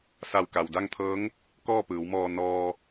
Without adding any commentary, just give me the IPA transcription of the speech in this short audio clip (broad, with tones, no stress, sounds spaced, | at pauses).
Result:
s a˧˩ w k a˩ w d a˥˨ ŋ t̪ʰ ɤː˧˥ ŋ | k ɔː˥˨ p ɯː˩˧ w m ɔː˧ n ɔː˧